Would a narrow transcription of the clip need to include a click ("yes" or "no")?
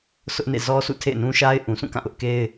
no